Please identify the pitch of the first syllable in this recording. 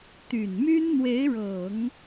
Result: low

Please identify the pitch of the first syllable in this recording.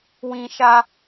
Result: high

